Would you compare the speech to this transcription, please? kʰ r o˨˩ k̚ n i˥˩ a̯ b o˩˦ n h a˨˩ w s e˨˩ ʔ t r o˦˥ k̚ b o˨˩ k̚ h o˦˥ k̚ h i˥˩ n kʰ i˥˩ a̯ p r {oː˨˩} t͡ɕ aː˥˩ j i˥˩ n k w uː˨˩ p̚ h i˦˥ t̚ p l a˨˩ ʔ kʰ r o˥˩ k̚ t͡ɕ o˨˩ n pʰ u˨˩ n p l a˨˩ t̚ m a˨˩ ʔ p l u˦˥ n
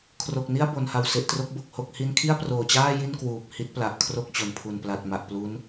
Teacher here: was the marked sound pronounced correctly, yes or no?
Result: yes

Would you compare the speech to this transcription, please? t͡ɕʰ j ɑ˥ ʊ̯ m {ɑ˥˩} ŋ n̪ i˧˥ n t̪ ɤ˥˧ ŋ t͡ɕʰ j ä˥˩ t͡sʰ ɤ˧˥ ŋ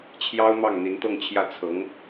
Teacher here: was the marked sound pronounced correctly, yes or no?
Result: yes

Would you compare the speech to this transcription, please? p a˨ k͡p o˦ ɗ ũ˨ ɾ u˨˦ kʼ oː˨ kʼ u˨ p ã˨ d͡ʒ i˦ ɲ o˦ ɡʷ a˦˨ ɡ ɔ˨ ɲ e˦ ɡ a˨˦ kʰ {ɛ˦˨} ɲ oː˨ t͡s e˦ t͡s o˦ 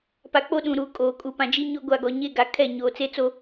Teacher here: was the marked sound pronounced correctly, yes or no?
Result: yes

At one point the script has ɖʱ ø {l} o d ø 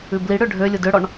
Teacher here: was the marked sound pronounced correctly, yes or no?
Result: no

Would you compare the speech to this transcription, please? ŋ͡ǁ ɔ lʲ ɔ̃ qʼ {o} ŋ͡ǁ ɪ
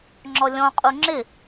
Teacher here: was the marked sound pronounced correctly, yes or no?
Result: no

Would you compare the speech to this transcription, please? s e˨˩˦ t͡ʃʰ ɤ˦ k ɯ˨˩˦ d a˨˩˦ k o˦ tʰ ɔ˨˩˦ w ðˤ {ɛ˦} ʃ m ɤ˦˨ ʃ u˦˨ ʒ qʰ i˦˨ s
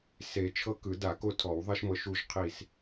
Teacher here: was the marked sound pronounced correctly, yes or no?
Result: yes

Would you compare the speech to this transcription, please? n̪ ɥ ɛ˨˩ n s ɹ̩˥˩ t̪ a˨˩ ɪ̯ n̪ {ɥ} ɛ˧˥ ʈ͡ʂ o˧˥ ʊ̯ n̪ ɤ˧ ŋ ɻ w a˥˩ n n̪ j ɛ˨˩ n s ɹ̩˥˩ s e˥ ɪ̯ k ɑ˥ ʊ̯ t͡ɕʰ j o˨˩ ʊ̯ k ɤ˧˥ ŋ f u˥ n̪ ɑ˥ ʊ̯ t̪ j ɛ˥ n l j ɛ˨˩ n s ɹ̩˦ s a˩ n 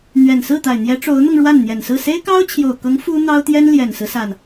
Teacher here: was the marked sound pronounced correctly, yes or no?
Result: no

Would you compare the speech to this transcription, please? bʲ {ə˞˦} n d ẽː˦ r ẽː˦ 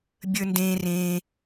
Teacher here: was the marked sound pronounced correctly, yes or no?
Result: yes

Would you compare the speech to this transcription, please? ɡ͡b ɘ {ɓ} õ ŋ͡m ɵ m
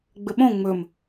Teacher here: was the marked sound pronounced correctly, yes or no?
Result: yes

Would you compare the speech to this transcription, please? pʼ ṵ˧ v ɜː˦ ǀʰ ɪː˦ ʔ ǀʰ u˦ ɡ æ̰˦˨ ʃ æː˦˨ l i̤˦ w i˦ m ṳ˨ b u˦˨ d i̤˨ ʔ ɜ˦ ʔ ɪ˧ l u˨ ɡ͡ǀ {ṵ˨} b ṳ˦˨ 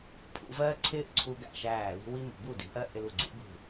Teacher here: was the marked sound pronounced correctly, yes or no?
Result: no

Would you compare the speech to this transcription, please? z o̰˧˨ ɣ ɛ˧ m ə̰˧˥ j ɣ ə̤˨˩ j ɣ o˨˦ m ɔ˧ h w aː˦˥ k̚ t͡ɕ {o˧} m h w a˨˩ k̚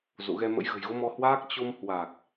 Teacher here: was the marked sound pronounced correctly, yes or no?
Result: yes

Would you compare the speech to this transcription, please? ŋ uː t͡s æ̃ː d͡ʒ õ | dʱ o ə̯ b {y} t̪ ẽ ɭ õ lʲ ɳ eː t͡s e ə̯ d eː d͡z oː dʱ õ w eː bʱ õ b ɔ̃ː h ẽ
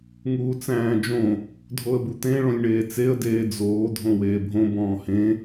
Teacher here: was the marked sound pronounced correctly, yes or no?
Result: no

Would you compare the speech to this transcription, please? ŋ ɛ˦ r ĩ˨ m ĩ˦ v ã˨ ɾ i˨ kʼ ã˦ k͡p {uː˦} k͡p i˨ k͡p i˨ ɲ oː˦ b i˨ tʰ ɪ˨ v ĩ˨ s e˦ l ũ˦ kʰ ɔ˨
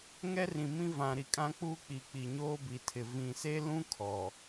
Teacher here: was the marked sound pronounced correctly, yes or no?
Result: yes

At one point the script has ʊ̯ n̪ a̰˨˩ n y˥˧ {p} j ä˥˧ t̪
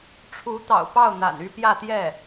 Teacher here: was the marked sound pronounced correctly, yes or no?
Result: yes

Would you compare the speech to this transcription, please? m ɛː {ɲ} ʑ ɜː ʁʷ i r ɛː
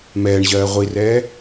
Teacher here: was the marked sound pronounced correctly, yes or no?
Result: no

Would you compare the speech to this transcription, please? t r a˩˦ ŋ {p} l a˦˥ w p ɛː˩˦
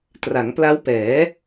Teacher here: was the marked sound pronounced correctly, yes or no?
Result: yes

